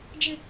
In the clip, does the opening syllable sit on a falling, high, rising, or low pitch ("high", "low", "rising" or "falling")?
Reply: high